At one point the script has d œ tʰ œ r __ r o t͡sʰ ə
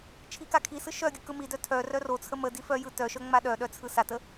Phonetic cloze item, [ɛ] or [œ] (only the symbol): œ